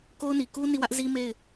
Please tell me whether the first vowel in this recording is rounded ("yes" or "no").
yes